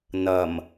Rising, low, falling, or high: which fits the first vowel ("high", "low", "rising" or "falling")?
low